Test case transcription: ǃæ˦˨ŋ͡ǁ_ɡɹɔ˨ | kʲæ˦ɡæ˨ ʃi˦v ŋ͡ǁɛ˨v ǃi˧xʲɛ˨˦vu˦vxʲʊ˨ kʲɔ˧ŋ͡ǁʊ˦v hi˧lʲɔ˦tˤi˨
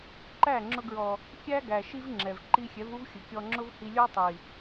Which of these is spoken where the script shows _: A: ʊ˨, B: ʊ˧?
B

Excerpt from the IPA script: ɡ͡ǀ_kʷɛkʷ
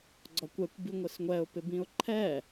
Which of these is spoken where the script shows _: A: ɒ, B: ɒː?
A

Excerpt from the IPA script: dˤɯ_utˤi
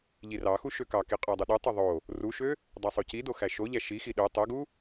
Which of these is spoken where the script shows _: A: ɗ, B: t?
A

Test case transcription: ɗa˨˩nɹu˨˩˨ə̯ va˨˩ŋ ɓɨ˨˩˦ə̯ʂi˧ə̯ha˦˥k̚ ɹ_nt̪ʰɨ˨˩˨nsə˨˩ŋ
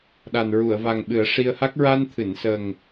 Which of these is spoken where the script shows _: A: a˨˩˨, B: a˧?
B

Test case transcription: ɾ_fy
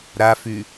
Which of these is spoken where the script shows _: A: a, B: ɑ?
A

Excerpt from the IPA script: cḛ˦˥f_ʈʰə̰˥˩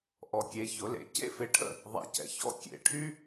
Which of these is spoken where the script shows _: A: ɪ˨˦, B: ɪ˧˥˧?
A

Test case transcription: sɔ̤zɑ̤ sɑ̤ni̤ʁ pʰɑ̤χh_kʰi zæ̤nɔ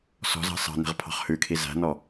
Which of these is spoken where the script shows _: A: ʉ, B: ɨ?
A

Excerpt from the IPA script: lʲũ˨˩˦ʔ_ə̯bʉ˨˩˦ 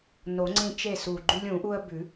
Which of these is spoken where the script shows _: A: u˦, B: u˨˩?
A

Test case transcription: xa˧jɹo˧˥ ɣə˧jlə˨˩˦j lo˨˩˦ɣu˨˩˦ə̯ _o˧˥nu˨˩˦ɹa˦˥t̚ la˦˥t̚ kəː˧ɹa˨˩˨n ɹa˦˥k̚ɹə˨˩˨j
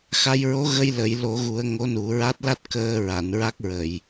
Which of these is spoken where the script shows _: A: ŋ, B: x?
A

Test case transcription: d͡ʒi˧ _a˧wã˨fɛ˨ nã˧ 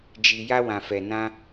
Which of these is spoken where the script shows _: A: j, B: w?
A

